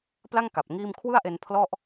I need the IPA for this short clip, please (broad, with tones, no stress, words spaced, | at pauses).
pla˥˩ŋ ka˨˩p̚ŋiː˥˩m kʰwɯ˥˩a̯ʔe˧n pʰlɔ˥˩ʔ